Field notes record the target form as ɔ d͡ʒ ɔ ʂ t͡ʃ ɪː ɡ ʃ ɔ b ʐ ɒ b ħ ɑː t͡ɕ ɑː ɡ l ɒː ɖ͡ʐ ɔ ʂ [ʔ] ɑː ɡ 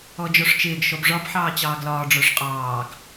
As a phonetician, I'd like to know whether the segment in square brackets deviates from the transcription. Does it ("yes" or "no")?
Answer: yes